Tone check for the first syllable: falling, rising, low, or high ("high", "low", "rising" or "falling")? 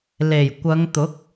low